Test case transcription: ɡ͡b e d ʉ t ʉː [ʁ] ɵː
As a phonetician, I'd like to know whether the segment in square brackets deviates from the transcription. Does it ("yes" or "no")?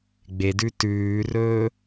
yes